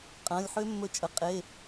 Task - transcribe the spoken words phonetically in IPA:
qʼ ɐ̃ː˩˧˩ lʲ ħ ø˦˥ mː ɵ˧ t͡ʃʼ ə˩˧˩ qʼ e˩˧˩

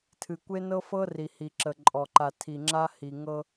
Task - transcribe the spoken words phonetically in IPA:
tʰ ɨ˨ kʷ e˦ n ɤ˦ f ɤ˦ r i˨ h i˨ ǁ ə˨ ǃʼ ɔ˨ ǃ a˨ tʰ i˨ ŋ͡ǁ a˦ h i˨ ŋ ɤ˦

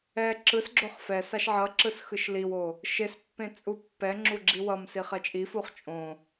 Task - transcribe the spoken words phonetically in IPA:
ɛ ǁ ɯ s ɡ͡ǁ o χ f ɛ s a ʃ ʕ ʌ ǁ ɯ s x ɯ ʃ l i w o | ʃ e s pː ẽ t͡sʼ u pː ɛ ŋ͡ǁ u ɡ͡ǁ i w ʌ m s i χ ɛ t͡ʃʼ i f u χ t͡ʃʼ õ

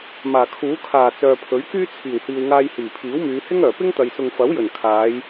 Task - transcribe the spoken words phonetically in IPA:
m aː˨˩ kʰ uː˨˥ kʰ aː˨˩ t͡s œː˨ pʰ ɵ˨˥ ɥ k yː˥ t͡sʰ iː˨˩ w h iː˨ w ŋ aː˧ j h iː˨˩ pʰ iː˨˥ w m yː˨˧ h ɪ˥ ŋ œː˨˩ p ɪ˥ ŋ t̪ ɐ˨ j s ʊ˨ ŋ f ɐ˨˥ w j ɵ˨˩ n kʰ aː˨˧ j

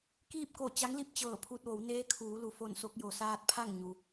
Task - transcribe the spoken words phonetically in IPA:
k iː˥˨ p̚ k o˧˩ t͡ɕ a˧˥ ŋ l i˥˨ p̚ t͡ɕ ɤː˧˩ pʰ u˧ t̚ ʋ o˩˧ w n eː˧˥ kʰ uː˩˧ l u˩ f o˧˩ n s o˧ k̚ j o˩ s aː˧ t̚ pʰ a˥˨ ŋ ɲ u˩

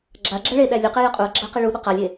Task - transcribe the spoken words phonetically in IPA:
ɡ͡ǁ a ɡ͡ǁ æ ɭ e ɗ æ lʲ u q e j ʌ qʼ u ɐ̯ ɡ͡ǁ a q i ɭ u ɗ ʌ q a lʲ e

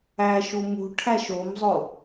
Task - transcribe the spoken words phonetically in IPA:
æ ʃ u m ṳ ʈʰ æ ʃ o m zˤ o

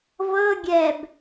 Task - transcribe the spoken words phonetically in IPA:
v ɤ ɡʲ ɛ b

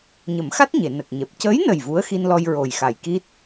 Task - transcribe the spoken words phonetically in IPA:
ɲ ə˨˩˦ m x a˦˥ t̚ ɲ e˨˩˨ n ə˨˩ k̚ ɲ ɛ˨˩ p̚ c əː˧˥ j n ə˨˩ j v u˧˥ ə̯ x i˧ n l ɔ˧ j ɹ o˨˩ j x a˨˩ j k i˦˥ t̚

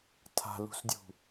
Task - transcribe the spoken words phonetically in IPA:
tʰ a̤ l ṳ s dʲ ṳ

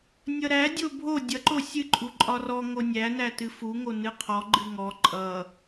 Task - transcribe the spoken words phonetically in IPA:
nʲ ʌ ɾ æ dʲ o bʱ o dʲ ʌ ǃ o sʲ ɨ ǃʼ u ǃʼ ɒ r ɔ ŋ o nʲ æ n æ t ɨ f u ŋ o n ɨ qʰ ɔ ɡ͡ǃ ɨ ŋ ɔ ǃʼ ʌ

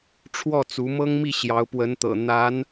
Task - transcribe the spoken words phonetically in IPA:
ʈ͡ʂʰ w ɔ˥˩ t͡s u˧˥ m ɤ˥ ŋ m i˥˩ ɕ j ɑ˧˥ ʊ̯ p w ə˧˥ n t̪ ɤ̰˨˩ n̪ a˧˥ n

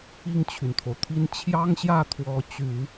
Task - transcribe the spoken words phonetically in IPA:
i˥˩ ŋ t͡ɕʰ y˩ n t̪ʰ o˩ ʊ̯ t̪ʰ i˥ n t͡ɕʰ j ɑ˥ ŋ ɕ j ä˥˩ t̪ʰ w ɔ˧˥ t͡ɕ y˨˩˦

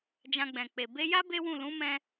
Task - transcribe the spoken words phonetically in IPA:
d͡ʒ ã˧ ɡ͡b ɛ̃˨ k͡p e˨ b e˧ j a˦ b e˦ w ũ˦˨ l ũ˨˦ m ɛ̃˧

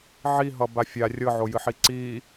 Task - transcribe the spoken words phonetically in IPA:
ʕ i ɦ ʌ b a fʲ a rʲ ɤ ʕ o j ɨ ħ i ǀ i

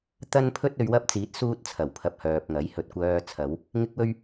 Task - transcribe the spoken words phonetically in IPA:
t̪ ɐ˥ n pʰ ɵ˥ t̚ ɵ˨˧ ɥ w ɐ˥ p̚ t͡s iː˨˥ t̚ s uː˥ t̚ t͡sʰ ɐ˨˩ w pʰ ɐ˧ p̚ h œː˨ p̚ ŋ ɐ˨˥ j h ɵ˨ t̚ kʷ œː˧ t͡sʰ ɐ˨˧ w | ŋ ɪ˥ k̚ w ɵ˥ ɥ

